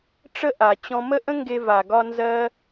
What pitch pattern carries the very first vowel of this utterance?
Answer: high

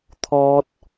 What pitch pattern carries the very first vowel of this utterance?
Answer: high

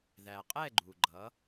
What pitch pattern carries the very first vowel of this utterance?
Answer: low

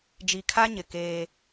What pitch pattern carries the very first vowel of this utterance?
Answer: low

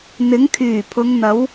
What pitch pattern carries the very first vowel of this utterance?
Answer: rising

